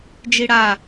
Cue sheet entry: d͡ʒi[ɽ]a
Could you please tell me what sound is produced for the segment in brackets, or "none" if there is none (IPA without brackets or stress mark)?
ɽ